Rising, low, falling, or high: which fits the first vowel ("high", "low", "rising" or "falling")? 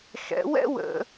rising